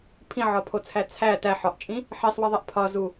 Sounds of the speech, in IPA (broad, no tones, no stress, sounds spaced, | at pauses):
pʰ ĩ ʕ ɒ pʰ o t͡sʰ æ t͡sʰ æ t æ ħ ɒ ʔ t͡ʃʼ ĩ | ħ i sˤ w i ðˤ e ʔ pʰ ɒ z u